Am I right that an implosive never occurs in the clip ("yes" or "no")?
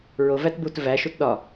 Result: no